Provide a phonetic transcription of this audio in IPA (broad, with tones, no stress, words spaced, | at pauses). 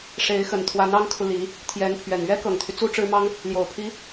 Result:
ʂe˧˥ɪ̯xə˨˩nt̪ʰwa˧˥n ɑ˥ŋkʰu˨li˧˥ | t̪ʰjɛ˧˥npʰɥɛ˨˩n ɥɛ˥kɤ˨˩ŋt̪ʰy˦ t͡su˥ʈ͡ʂɻ̩˥mɑ˥ŋ | ljo˨˩ʊ̯pʰi˧˥